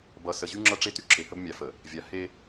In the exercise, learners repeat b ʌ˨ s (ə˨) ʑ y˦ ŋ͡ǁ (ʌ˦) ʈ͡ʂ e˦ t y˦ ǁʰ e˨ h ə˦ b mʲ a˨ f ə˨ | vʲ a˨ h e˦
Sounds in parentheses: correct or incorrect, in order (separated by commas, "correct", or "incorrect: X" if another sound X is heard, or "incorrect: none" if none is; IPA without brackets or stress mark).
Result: correct, correct